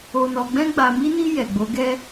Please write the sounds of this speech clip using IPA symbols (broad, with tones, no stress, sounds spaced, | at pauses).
o˧ n ɔ˧ ɡ͡b ɛ̃˧ ɡ͡b a˨ m i˧ n i˧ j ɛ˨ ɡ͡b o˨˦ ɡ ɛ˦